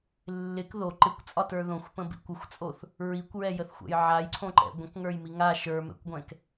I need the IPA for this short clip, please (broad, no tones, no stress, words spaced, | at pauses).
lːɪk ðo ǃɪkʷt͡sʼɒtə˞ ðõxʷpə̃bḭ kʷəxʷt͡sʼoθ | ɹikʷɹɛjəθxʷɛ̰j ʕajǀʰõǃɛ̰ ɡʷə̃kŋə˞jmi ŋa ʃə˞mɛ̰kʷɡʷɛ̃k